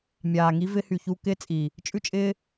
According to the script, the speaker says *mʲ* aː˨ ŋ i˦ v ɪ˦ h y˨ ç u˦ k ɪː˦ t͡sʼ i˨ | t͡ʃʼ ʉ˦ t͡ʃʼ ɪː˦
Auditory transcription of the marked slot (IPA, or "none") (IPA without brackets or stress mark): mʲ